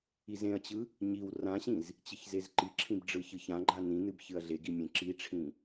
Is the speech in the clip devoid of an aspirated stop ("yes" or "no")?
no